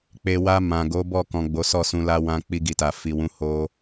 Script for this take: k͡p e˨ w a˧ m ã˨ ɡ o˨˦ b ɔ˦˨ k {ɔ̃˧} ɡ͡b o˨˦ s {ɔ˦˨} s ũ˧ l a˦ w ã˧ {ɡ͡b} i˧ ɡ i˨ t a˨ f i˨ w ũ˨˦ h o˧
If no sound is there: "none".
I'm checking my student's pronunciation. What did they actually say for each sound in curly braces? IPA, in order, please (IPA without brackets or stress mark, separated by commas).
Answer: ɔ̃˨, ɔ˦˨, k͡p